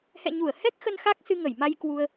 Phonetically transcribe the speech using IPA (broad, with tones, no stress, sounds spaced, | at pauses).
h ɛ̰˧˨ ɲ u˧˩ ə̯ h ɛ˦˥ k̚ x ə˧ n x a˦˥ k̚ s ɨ˧ ŋ ə˧˩ j m a˧ j k w u˧ ə̯